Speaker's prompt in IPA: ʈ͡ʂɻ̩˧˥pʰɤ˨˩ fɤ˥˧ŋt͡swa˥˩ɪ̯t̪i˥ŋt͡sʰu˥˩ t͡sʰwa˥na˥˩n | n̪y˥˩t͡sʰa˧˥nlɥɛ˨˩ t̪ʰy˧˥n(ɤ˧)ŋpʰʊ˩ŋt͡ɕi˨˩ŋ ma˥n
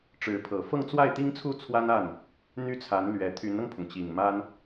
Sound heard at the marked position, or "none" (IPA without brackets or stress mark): ɤ˧